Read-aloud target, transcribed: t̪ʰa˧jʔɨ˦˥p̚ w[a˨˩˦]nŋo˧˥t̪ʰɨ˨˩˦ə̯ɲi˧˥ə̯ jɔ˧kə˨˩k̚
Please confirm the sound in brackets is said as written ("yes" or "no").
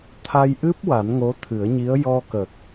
yes